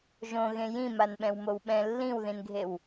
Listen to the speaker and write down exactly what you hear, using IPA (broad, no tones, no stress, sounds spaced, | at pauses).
ʒ õ ɣ ẽ j ĩ m a n ɓ ɛ̃ w m o w ɓ ɛ̃ lː ĩ w ð ĩ n ɡʱ e w